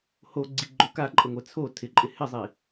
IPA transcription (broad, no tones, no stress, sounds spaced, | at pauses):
h o ɡ͡ǀ i ɡ͡ǃ o k a ǃʼ ə ŋʷ ɛ t͡sʰ o tʰ ɪ ǃʼ ɪ h ɪ zˤ i